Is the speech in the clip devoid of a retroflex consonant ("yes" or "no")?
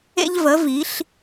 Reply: yes